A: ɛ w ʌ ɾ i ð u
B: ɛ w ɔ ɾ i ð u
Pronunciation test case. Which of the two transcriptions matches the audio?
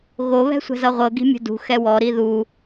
B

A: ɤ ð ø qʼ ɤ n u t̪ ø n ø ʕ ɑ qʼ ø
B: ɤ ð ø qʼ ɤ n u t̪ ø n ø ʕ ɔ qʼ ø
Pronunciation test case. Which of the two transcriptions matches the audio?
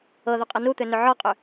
B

